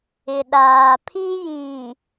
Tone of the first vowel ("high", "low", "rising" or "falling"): low